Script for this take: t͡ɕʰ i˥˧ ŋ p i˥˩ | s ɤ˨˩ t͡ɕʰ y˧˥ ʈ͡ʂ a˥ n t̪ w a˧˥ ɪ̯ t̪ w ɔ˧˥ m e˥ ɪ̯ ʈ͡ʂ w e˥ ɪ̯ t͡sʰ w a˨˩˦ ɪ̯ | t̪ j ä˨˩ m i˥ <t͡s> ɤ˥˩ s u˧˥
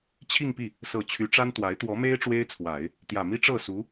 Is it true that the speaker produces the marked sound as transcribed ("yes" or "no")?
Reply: no